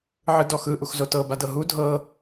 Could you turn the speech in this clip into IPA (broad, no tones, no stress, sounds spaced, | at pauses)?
ʕ ɯ d ɔ x ɯ ʔ u x z o t ɤ b a d ɤ ɦ u dʱ ɤ